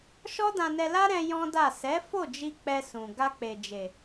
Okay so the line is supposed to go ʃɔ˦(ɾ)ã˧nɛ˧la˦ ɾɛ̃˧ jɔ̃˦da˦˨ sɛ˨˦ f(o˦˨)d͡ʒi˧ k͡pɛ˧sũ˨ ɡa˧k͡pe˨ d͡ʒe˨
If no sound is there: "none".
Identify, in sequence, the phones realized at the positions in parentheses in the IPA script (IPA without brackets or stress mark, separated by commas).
d, o˦˨